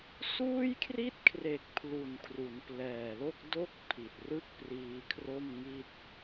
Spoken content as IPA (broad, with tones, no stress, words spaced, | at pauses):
suː˥˩jkʰri˥˩t̚kʰre˨˩k̚ pʰlu˨˩nkʰru˩˦nplɛː˨˩lo˥˩k̚ do˥˩k̚ pʰi˨˩t̚rɯ˥˩k̚ priː˧kʰro˥˩mŋi˥˩t̚